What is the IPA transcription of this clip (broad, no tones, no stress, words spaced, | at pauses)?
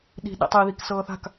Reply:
ɗi̤ ɗḭtˤi ðiksɤːθa̤k